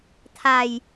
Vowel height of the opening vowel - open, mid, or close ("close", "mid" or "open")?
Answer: open